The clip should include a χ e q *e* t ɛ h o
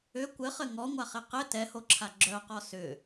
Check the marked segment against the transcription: incorrect: ɘ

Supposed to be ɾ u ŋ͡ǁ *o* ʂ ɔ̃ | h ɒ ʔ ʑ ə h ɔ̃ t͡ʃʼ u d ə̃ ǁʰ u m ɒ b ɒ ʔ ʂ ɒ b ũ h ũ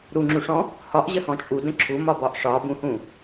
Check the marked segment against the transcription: incorrect: u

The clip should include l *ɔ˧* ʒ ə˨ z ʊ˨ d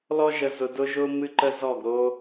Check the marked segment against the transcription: correct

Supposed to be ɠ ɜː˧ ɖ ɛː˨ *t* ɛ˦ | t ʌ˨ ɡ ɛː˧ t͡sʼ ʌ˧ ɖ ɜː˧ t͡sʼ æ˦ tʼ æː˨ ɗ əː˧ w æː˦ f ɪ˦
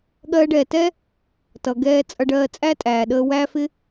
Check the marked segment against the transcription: correct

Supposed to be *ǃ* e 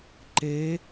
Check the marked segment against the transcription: correct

